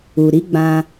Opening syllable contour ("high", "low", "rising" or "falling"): low